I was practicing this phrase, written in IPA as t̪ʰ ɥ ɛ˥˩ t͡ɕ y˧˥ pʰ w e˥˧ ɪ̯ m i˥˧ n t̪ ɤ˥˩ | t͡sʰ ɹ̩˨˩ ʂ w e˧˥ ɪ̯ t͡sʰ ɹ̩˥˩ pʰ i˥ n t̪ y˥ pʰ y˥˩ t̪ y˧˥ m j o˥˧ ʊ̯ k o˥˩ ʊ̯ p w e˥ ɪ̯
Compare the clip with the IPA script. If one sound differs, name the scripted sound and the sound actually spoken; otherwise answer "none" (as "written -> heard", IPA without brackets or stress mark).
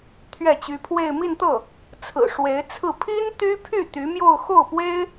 k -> x